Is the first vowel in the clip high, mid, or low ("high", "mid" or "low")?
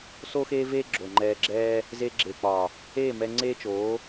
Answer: mid